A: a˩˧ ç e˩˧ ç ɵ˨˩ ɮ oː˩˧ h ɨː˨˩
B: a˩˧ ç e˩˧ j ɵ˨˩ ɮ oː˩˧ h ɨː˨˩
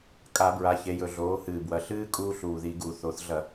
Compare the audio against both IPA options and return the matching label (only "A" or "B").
B